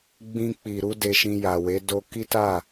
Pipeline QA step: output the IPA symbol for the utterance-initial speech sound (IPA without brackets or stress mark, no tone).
ɡ͡b